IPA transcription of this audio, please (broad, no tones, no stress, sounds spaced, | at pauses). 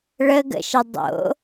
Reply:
ɭ ə ɡ ə̰ ʃ ə dˤ o̰